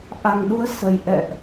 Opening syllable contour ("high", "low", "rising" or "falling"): low